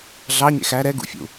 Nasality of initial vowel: oral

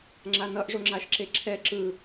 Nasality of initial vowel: oral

